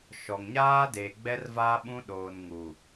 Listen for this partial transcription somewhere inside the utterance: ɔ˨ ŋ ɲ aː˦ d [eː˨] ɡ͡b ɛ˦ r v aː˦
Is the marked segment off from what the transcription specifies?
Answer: no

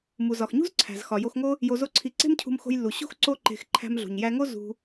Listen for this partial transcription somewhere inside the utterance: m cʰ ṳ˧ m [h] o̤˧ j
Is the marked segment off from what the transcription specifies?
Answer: yes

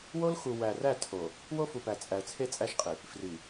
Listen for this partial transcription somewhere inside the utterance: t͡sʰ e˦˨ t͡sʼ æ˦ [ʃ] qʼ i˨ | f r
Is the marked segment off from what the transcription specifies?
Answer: no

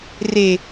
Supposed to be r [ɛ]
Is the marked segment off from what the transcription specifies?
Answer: yes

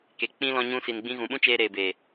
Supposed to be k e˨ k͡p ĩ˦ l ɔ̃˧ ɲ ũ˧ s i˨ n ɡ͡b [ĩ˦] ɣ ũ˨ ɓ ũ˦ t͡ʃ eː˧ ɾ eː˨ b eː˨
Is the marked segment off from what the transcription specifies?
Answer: yes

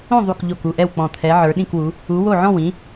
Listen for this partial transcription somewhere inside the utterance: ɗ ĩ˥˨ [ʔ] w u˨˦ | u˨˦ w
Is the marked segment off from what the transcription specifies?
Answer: yes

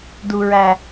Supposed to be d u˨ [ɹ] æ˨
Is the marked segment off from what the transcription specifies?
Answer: no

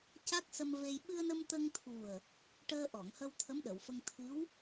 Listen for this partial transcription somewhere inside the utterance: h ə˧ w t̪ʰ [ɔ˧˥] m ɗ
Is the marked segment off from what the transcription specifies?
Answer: yes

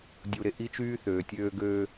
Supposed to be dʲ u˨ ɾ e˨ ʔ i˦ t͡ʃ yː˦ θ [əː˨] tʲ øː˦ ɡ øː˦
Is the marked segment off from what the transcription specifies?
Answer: yes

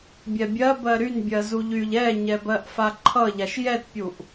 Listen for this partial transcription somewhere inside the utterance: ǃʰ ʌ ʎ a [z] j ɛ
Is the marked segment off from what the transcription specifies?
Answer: yes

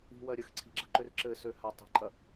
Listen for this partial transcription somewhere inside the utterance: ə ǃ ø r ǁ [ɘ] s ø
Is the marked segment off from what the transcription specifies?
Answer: no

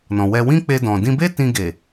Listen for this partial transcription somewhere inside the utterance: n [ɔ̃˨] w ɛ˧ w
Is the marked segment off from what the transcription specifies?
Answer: no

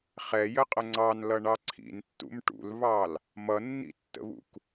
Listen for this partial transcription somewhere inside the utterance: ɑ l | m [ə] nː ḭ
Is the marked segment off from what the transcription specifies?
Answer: yes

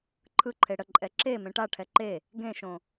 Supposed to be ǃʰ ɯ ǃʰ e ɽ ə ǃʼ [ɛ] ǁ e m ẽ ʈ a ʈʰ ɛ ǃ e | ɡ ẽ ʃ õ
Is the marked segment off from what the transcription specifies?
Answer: no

